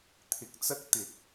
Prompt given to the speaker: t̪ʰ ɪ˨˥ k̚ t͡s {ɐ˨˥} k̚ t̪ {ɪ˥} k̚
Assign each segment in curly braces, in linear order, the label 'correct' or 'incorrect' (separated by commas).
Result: incorrect, incorrect